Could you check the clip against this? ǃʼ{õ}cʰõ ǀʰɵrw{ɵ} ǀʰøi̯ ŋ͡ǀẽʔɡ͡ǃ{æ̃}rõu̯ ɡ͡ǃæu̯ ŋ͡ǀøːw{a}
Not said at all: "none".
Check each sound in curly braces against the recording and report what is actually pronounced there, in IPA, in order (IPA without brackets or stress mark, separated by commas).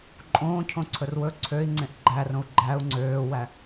õː, ɵ, æ, æ